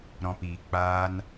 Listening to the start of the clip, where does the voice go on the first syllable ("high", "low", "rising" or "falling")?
low